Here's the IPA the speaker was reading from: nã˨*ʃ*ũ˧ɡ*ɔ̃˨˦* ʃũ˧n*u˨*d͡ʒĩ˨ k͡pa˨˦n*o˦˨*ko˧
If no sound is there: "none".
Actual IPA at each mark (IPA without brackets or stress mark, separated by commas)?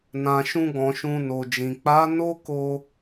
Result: ʃ, ɔ̃˨, o˨, o˦